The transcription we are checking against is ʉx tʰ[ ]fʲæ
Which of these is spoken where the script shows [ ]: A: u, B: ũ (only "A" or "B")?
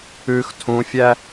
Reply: B